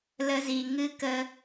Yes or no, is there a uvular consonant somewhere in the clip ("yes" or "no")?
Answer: no